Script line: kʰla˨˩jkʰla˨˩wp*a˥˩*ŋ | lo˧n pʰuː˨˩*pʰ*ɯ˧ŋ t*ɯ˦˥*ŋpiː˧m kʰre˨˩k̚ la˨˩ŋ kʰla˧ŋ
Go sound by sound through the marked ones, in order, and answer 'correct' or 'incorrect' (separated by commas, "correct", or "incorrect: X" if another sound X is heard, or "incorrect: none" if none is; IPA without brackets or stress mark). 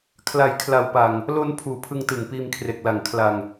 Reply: incorrect: a˨˩, correct, incorrect: ɯ˨˩